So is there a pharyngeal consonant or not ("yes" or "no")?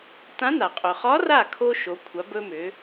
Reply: no